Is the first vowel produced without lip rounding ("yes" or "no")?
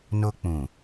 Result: no